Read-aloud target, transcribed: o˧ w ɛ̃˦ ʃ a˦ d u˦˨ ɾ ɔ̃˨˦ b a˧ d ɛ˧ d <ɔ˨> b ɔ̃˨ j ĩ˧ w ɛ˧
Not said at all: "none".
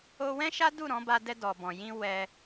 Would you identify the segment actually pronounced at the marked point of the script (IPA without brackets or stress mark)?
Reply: ɔ˨